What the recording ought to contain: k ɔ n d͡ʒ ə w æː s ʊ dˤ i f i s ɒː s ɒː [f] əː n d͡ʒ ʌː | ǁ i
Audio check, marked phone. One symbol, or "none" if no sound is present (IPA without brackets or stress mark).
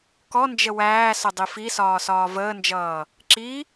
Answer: v